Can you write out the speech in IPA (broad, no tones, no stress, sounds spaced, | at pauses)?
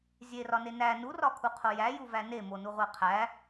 zʲ e r ɒ n e n æ n u r ɒ kʰ u qʰ o j æ j u v æ n e m o n u ʁʷ æ qʰ æ